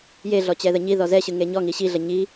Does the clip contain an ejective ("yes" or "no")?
no